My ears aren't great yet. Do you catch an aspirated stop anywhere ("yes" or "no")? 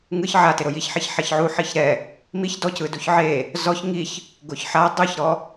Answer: no